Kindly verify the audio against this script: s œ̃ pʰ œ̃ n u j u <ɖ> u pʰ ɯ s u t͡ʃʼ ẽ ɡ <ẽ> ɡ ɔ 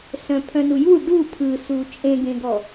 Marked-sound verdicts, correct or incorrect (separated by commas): correct, correct